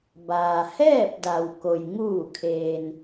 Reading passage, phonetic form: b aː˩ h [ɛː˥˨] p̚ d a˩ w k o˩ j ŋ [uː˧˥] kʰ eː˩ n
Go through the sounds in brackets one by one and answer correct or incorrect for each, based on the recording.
correct, incorrect

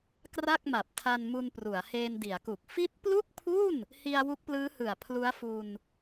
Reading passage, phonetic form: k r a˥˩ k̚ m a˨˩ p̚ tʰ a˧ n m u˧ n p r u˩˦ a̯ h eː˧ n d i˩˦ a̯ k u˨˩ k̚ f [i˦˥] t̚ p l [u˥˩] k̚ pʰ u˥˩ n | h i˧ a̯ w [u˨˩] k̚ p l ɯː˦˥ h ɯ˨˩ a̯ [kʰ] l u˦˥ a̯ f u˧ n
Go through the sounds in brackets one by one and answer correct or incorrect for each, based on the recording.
correct, correct, incorrect, incorrect

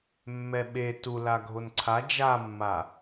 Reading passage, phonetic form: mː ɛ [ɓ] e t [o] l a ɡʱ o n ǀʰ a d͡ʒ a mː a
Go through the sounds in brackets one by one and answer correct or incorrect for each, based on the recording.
correct, incorrect

